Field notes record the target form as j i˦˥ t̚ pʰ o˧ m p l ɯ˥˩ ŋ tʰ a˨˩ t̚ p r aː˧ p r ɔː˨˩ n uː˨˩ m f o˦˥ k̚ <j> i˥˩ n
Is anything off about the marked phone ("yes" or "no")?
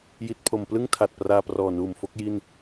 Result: no